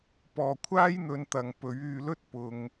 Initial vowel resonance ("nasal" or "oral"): oral